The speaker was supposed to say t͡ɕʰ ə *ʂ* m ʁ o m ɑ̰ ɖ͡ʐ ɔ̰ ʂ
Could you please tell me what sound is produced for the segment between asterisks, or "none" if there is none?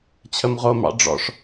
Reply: none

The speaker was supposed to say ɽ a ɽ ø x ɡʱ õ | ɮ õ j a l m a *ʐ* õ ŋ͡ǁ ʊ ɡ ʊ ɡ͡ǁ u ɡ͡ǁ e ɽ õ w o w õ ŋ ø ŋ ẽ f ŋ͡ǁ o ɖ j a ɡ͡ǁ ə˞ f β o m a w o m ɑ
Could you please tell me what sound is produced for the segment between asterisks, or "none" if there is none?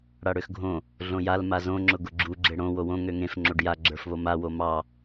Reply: z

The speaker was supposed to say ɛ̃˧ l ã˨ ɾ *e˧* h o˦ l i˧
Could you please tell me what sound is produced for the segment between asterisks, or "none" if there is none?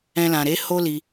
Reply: e˨˦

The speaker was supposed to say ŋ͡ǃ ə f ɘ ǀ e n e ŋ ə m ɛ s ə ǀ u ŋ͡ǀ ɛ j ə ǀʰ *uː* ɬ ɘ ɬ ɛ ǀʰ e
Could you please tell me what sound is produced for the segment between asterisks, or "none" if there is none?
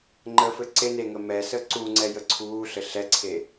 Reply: uː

